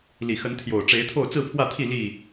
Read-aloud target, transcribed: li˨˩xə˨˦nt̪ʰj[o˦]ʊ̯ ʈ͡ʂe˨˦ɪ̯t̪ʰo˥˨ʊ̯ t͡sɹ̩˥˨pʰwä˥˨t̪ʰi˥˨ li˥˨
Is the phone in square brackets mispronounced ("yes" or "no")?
yes